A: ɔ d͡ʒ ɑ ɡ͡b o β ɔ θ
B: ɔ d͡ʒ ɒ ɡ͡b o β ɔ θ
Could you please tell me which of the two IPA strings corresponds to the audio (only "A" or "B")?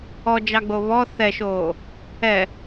A